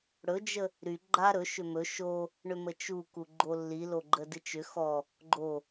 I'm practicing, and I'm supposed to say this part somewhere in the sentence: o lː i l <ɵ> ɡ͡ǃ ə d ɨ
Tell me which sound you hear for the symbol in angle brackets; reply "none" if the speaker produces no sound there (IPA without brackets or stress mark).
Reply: o